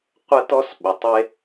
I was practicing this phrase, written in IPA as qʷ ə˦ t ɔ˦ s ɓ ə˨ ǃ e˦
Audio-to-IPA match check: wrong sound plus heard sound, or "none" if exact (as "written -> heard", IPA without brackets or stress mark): ǃ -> tˤ